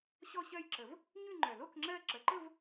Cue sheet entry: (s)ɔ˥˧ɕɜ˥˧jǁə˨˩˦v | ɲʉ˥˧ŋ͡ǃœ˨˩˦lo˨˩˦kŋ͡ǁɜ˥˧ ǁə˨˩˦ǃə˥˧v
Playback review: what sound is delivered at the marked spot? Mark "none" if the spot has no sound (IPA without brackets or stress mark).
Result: ɕ